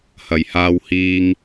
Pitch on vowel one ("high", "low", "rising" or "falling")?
low